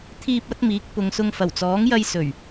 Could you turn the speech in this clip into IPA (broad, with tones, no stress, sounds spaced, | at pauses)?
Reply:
t̪ʰ iː˧ p̚ ɐ˨˥ t̚ m iː˨˥ k̚ p ʊ˨˧ ŋ s ʊ˧ ŋ f ɐ˨˩ w t͡s ɔː˨˥ ŋ j ɐ˧ j s ɵ˨˩ ɥ